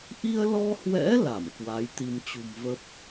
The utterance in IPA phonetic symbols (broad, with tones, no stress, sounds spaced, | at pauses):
ʔ i˧ ə̯ l ɔ˧ h w ɛ̰˧˥ l a˧˩ m k w a˨˦ j t̪ i˧ m t͡ɕ ṳ˨˩ m v ə˦˥ p̚